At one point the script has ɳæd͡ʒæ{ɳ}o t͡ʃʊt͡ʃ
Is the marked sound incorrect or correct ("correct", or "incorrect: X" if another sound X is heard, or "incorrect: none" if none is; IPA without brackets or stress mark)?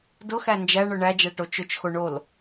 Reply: incorrect: ʈ